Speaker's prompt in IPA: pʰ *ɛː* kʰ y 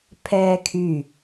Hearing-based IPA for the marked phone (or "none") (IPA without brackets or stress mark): ɛː